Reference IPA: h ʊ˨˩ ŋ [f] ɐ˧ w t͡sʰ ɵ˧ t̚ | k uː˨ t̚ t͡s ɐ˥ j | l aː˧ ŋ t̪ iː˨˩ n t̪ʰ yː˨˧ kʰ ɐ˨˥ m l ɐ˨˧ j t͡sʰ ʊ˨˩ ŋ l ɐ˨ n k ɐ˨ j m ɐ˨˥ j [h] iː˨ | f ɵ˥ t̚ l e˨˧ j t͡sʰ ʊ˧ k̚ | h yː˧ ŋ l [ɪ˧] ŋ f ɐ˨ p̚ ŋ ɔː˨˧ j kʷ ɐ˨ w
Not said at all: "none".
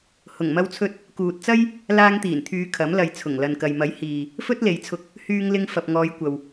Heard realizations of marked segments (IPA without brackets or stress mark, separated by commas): m, h, ɪ˧